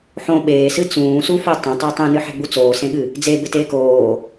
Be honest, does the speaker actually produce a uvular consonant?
no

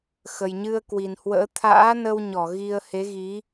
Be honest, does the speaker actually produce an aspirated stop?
yes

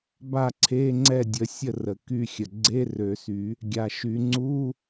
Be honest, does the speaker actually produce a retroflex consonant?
no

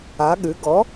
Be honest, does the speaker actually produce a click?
no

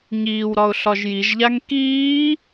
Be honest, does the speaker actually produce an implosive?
no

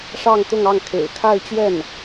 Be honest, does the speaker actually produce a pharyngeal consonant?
no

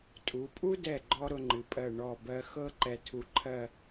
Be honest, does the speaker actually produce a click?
yes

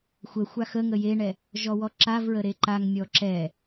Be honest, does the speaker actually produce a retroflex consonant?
yes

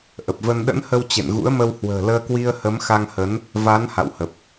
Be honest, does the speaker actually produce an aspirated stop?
no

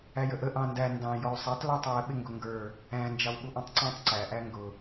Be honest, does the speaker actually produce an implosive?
yes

